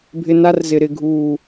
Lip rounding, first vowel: unrounded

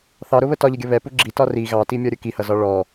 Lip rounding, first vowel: unrounded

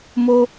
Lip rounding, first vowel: rounded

